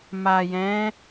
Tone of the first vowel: low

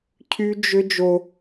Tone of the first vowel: high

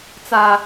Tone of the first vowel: low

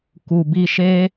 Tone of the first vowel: low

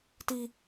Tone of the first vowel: low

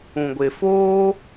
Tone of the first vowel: low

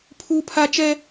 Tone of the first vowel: high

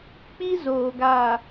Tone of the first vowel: high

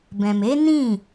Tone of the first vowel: low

